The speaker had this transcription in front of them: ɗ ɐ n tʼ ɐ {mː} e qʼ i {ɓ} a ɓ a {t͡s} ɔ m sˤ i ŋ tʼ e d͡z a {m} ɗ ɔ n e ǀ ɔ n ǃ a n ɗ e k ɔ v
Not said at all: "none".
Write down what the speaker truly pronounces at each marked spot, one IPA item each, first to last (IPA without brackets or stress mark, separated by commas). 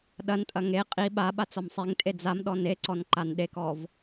ŋ, ɓ, t͡s, m